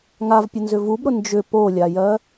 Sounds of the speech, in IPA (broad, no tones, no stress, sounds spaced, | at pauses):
ŋ a v pʲ ʊ n z ʏ v u b ɾ ʊ n d͡ʒ ʏ p o lʲ a j ɜ